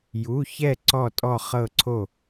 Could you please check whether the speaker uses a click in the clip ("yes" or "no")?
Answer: yes